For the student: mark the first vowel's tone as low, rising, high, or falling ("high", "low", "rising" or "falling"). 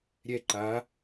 falling